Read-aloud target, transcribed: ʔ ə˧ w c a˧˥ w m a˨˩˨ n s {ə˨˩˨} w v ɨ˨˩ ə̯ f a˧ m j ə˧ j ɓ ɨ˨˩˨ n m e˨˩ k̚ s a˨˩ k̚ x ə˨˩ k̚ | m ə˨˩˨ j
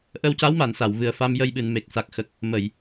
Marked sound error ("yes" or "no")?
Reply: yes